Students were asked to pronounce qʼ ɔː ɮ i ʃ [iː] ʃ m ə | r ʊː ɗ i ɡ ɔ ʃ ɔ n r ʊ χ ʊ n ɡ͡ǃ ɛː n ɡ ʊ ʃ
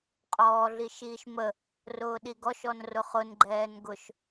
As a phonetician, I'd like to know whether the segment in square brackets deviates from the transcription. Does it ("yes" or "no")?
no